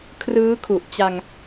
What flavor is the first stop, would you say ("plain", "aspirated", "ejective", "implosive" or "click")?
aspirated